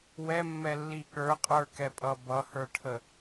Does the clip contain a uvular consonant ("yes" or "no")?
yes